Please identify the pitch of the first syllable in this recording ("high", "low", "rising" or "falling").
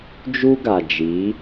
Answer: high